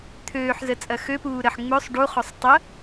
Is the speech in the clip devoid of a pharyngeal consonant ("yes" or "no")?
no